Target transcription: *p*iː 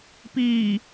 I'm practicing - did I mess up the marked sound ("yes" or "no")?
no